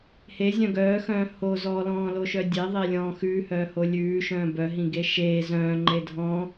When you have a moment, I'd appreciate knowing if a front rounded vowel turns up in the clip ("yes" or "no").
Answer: yes